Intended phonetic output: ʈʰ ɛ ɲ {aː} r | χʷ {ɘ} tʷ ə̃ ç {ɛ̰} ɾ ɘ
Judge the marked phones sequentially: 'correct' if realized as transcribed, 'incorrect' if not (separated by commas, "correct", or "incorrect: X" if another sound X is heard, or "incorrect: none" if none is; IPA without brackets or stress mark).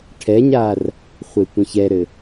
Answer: correct, incorrect: e, incorrect: ɛ